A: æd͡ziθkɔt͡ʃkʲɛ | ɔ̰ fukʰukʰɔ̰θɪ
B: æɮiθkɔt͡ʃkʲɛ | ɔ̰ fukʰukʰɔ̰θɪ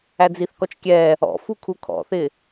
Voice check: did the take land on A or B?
A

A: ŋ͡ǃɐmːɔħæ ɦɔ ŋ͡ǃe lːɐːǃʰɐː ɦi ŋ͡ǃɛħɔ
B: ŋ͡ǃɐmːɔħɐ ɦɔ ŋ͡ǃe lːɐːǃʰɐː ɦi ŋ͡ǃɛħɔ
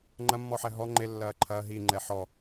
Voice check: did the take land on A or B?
A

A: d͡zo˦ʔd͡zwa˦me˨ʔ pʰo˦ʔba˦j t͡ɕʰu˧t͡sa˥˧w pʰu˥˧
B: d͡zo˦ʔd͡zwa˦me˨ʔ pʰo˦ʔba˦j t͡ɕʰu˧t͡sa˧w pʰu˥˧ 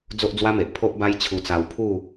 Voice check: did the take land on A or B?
B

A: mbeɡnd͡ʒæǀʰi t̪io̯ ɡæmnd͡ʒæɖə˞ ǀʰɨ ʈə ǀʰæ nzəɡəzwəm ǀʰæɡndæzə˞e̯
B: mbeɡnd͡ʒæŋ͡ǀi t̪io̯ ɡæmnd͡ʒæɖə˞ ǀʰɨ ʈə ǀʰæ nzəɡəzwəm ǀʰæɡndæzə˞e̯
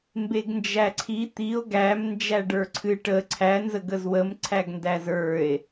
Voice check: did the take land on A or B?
A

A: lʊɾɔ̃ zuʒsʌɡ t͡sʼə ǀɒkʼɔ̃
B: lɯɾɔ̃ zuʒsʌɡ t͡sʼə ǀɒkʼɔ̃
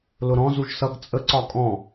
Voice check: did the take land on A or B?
A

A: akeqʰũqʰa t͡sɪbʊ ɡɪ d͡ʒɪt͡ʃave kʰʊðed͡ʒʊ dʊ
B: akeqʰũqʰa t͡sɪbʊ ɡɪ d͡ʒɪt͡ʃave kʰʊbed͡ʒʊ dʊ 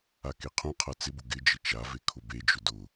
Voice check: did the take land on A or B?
B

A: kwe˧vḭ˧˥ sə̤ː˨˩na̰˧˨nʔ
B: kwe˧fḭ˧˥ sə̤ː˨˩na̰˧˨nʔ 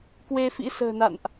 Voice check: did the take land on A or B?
B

